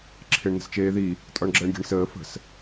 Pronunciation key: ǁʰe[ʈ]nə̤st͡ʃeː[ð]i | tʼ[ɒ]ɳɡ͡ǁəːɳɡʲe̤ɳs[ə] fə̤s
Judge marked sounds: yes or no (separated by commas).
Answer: no, yes, yes, no